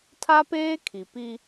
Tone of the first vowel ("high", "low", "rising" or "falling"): high